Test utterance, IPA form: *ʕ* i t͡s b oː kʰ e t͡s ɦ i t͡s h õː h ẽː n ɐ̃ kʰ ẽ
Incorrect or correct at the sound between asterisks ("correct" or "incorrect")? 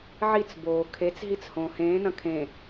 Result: correct